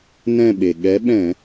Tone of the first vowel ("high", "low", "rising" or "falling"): falling